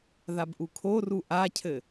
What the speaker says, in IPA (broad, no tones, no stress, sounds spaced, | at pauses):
ð a b ʔ u kʰ o r u ʔ a cʰ ɘ